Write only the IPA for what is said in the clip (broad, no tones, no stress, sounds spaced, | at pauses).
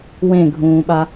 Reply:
w ẽ ɡʱ ũː ɓ a